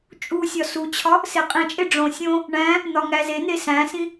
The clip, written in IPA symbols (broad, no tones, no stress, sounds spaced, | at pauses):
t͡ʃʼ u sʲ ɒ s u t͡ɕʰ ɒ | s e qʼ ĩ t͡ʃʼ e ɖ͡ʐ õ sʲ õ | ɳ æ̃ | n̪ ɒ ŋ æ z e n̪ e s æ̃ s ĩ